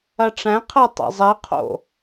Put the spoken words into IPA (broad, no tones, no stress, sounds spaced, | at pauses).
ɐ ʈ͡ʂ æ̃ qʰ æ tˤ ɛ̰ zˤ ɛ qʰ o̰